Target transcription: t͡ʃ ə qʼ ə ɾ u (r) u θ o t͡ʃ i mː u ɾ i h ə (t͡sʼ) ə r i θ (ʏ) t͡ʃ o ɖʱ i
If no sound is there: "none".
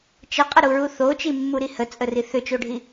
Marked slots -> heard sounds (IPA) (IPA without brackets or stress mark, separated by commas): ɹ, t͡sʼ, ʏ